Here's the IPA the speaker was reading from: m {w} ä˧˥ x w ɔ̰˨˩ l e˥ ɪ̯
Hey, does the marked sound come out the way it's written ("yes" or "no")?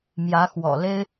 no